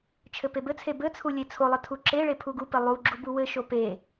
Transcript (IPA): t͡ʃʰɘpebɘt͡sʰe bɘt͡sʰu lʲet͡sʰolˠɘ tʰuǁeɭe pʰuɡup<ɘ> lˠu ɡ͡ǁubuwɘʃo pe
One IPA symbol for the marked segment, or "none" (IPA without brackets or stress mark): ɘ